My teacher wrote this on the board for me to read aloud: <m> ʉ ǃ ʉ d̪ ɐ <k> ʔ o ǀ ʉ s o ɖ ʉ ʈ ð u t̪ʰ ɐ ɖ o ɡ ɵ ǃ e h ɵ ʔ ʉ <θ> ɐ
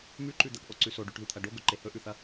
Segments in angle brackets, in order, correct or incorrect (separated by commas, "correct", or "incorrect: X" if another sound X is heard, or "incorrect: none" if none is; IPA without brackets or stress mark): correct, correct, correct